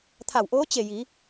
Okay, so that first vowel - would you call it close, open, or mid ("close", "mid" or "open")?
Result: open